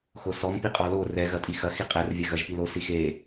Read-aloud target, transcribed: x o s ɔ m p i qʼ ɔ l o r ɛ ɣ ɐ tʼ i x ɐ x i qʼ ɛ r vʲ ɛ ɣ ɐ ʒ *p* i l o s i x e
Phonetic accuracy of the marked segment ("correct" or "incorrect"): correct